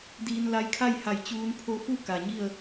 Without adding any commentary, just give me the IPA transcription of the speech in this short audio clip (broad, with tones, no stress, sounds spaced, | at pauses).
d iː˧ n l a˧ j kʰ a˥˨ j h a˧˩ j t͡ɕ uː˧ n pʰ o˧˥ f u˥˨ k a˩ ɲ i˥˨ ə̯